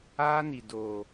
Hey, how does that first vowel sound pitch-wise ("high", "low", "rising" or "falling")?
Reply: high